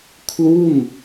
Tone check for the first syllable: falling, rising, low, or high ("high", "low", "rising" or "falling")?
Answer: falling